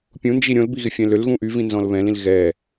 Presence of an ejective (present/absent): absent